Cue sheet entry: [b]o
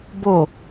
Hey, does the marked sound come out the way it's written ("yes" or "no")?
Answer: yes